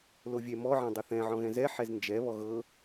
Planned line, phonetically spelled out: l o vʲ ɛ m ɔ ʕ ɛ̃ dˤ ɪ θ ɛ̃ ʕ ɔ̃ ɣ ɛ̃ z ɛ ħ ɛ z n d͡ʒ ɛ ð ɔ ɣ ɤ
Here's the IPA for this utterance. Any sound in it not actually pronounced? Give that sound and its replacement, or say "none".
ð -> β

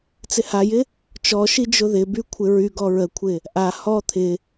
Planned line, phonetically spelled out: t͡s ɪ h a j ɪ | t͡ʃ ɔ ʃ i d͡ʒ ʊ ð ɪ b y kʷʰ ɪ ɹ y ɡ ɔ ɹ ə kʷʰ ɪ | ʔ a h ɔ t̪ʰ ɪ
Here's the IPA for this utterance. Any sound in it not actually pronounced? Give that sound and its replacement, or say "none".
none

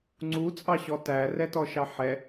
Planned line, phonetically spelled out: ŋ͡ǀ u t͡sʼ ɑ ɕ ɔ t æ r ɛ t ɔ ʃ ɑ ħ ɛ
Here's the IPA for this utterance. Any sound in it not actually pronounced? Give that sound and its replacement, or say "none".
none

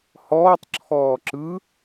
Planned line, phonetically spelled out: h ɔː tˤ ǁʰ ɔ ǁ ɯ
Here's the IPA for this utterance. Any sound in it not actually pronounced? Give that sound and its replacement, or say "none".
ɔ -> ɔː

